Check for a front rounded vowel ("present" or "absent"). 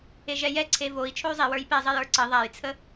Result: present